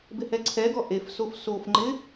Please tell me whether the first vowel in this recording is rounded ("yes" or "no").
no